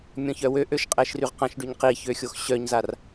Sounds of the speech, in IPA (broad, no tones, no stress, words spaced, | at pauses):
mʲɔ̃çœwøʔøʃ qʼɛʃryʁqãʃɖyɲ qiçø xʲoxɕœɲzar